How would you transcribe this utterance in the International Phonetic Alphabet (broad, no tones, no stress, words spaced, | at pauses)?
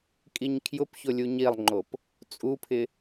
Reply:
kʼiɲkʰjʊpçʊ lʲuɲilˠŋ͡ǃop | t͡sʼupʰɪ